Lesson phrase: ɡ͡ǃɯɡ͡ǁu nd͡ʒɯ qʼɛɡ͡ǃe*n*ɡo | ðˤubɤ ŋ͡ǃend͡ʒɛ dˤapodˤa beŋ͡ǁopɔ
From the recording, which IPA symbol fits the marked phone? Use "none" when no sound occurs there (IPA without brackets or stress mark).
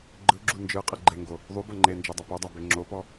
ŋ